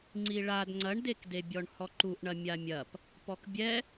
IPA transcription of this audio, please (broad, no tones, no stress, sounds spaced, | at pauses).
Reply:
ŋ͡ǀ i ɭ a d ŋ͡ǀ ɐ ɳ d e k d e bʲ ɔ ɳ h ɔ ǃ u ʔ ɳ ɐ mʲ a mʲ ɐ p | p ɔ k bʲ ɛ